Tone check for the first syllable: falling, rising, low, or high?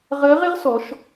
rising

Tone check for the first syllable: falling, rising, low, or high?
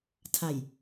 low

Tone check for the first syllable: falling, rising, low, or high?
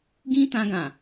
high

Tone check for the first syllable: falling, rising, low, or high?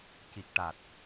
low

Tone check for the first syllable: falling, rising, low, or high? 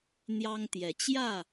high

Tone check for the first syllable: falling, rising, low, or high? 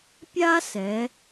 high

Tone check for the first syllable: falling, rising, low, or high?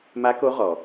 rising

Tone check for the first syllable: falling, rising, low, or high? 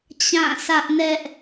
falling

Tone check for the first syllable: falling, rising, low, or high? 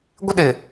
high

